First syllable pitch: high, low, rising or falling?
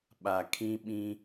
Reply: low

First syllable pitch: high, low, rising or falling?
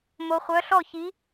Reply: low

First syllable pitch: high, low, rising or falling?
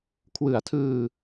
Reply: low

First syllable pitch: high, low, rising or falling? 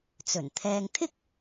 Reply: low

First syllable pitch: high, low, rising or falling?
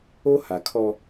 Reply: high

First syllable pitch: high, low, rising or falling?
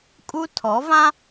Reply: high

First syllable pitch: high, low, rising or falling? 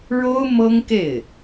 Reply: high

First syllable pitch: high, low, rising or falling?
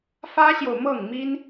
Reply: high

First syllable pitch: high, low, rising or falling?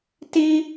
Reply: high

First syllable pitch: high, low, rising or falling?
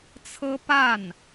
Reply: high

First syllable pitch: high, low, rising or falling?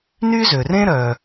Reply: high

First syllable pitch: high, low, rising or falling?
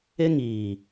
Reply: high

